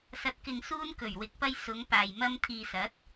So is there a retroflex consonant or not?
no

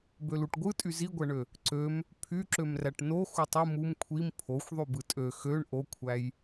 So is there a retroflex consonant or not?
yes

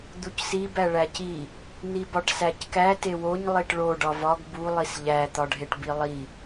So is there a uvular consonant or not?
no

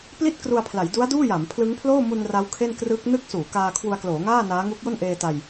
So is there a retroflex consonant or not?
no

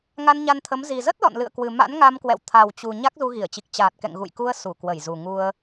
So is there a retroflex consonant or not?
no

